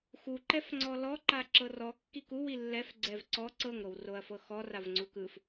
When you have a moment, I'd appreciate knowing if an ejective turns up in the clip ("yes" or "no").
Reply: no